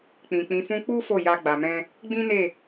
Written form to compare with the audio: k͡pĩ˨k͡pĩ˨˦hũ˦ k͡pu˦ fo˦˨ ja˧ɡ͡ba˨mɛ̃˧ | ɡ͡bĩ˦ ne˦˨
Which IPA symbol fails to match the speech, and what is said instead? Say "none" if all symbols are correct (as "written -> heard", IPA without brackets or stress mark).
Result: h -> f